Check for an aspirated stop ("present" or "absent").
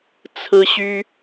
present